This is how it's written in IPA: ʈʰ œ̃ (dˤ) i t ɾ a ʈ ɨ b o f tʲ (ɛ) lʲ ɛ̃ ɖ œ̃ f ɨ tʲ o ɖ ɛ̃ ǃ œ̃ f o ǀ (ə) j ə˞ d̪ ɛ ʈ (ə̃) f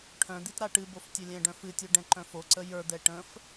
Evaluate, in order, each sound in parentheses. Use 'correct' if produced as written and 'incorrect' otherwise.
incorrect: d̪, incorrect: œ, correct, correct

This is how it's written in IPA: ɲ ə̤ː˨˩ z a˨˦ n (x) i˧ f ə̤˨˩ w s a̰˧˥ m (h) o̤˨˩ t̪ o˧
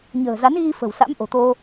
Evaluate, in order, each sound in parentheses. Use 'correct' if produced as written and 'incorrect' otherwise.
incorrect: ɣ, incorrect: ʔ

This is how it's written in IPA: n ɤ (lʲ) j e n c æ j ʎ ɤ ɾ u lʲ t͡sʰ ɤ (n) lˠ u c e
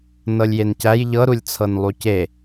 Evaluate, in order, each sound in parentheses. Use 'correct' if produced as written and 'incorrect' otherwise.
correct, correct

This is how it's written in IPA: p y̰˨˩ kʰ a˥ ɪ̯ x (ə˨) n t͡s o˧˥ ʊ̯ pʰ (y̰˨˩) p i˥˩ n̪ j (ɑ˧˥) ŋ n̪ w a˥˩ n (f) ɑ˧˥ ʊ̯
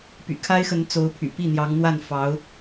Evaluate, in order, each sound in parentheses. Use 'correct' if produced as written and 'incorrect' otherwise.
incorrect: ə˧˥, correct, correct, correct

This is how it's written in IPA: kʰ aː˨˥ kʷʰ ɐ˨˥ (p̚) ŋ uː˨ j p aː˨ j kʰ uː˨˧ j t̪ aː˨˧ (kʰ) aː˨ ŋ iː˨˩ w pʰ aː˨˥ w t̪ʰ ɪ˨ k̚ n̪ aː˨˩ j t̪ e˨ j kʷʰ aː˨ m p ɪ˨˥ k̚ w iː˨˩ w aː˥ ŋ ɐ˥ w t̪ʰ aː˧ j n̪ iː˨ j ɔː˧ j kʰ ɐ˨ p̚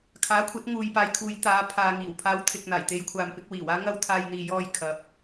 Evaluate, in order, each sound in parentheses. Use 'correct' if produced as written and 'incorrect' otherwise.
incorrect: t̚, incorrect: pʰ

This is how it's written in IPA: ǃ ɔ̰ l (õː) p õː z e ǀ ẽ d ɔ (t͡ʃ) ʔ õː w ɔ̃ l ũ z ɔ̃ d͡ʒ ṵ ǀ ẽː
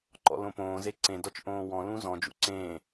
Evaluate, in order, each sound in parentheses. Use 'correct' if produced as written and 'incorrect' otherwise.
incorrect: õ, correct

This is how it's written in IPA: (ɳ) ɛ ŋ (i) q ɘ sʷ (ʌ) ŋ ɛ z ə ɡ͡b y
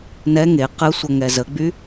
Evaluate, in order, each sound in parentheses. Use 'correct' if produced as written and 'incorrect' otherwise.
incorrect: n, incorrect: e, correct

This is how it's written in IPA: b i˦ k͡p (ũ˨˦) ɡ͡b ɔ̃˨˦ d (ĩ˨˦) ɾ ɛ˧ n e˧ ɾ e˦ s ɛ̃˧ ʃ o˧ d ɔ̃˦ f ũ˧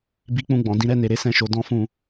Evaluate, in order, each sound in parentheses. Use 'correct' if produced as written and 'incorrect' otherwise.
incorrect: ũ˦˨, incorrect: ĩ˦

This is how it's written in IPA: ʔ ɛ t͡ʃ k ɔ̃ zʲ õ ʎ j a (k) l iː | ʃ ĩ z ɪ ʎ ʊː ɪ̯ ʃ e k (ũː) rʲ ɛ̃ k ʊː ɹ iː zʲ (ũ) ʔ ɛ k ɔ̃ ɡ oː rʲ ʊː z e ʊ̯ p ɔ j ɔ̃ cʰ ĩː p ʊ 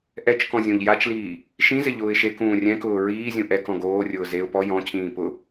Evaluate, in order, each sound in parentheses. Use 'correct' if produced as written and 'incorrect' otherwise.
incorrect: t͡ʃ, correct, correct

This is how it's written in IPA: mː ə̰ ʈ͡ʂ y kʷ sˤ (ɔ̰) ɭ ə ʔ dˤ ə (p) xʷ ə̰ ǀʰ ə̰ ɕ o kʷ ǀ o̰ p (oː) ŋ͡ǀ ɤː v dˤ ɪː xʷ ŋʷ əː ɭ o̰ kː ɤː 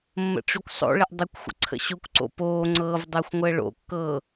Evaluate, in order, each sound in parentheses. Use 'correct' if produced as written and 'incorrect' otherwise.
incorrect: o̰, incorrect: kʷ, correct

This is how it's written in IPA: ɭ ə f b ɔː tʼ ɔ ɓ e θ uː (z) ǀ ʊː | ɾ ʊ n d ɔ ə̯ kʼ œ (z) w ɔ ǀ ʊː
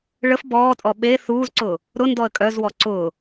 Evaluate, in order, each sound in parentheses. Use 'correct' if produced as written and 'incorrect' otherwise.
correct, correct

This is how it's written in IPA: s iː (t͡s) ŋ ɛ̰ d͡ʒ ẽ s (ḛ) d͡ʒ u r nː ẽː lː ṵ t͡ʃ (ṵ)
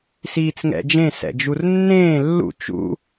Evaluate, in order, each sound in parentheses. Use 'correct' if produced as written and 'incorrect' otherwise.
correct, incorrect: ɛ̰, correct

